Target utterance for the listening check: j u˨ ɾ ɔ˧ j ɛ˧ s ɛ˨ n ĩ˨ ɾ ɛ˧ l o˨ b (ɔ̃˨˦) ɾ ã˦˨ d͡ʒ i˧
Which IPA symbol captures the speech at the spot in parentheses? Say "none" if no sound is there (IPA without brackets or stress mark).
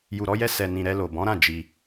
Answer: ɔ̃˨˦